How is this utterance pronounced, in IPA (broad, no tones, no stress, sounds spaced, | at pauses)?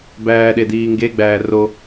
b æː ɗ e d iː ŋ ɡ e ɡ͡b æː r o